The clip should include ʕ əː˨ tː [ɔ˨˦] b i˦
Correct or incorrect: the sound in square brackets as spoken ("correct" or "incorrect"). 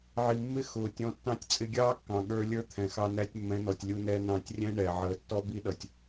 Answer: incorrect